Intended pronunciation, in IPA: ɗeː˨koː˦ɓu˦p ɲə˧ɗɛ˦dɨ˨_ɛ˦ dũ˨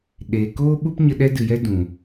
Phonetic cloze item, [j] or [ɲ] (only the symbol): j